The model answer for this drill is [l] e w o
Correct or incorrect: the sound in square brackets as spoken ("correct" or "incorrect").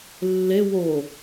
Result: incorrect